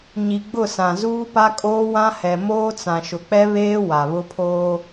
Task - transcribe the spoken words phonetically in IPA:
ɲ i˨ ɡ͡b ʊ˦˨ s ã˨ z uː˦ p a˦ kʼ oː˦ w ã˦ h ɛ˨ m oː˦ t͡s ã˨ ʃ ʊ˨ k͡p ɛ˦ β eː˦ w a˨ β ʊ˦ pʰ oː˦

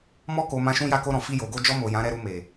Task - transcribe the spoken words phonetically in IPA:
m ɔ˧ k o˨ m ã˧ ʃ ũ˦ j a˦˨ k o˧ ɾ ɔ̃˨ f i˧ j o˨ ɡ o˧ d͡ʒ ɔ˧ m o˨ j ã˨˦ ɾ ɛ˧ ɾ u˧ m e˨

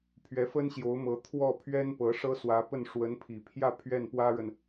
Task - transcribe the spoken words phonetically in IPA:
pʰ ɥ ɛ˧˥ f ə˥ n ɕ j o˧˥ ʊ̯ m ɤ˧˥ t̪ʰ w ɔ˥˩ pʰ ɥ ɛ˥ n p ɤ˧˥ ʂ ɤ˥ s w ä˧˥ p ə˥˩ n ʂ w ə˧˥ n pʰ i˨˩ pʰ j ä˥˧ pʰ ɥ ɛ˥˩ n p w ä˥ ɻ ə˨ n

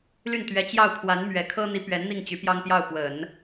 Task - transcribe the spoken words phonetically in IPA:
l y˥˩ n t̪ ɥ ɛ˧˥ t͡ɕ j ɑ˥˩ ʊ̯ pʰ w a˧˥ n m ɥ ɛ˨˩ kʰ ɤ˥ n̪ i˧˥ p ɥ ɛ˧˥ n n̪ i˥˩ ŋ t͡ɕ y˧˥ p j ɑ˥ ŋ p j ɑ˥˩ ʊ̯ p w ə˨˩˦ n

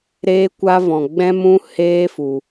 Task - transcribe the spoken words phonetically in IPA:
ɾ eː˦ kʷ a˦ v ɔ̃˧ ɡ͡b ɛ̃˦ m ũ˦ h eː˦ f u˧

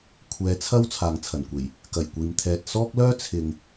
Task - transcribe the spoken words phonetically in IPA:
kʷʰ ɛː˨˧ t͡sʰ ɐ˥ w t͡sʰ aː˨ ŋ t͡sʰ ɐ˨˩ n kʷ e˨˩ j | k ɐ˨˩ j kʷ iː˨ m t̪ʰ ɛː˨ t̚ s ɔː˥ k̚ l œː˥ t͡sʰ ɪ˨ ŋ

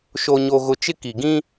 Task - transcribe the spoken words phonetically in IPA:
ʃ o˦ ɲ o˦ ɣ ʊ˦ t͡ʃ ɪ˦ k i˨ ɡ ĩ˦

